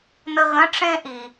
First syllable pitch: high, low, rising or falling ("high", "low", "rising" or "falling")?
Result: high